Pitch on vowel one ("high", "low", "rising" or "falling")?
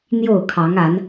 falling